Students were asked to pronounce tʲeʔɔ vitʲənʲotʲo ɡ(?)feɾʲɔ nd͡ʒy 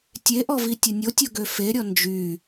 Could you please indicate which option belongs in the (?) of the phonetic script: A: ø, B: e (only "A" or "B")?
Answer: A